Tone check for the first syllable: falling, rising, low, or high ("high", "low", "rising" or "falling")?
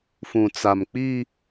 low